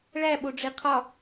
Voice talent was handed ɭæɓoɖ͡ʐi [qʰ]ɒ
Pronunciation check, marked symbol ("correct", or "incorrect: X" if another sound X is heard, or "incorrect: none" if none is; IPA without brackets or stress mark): correct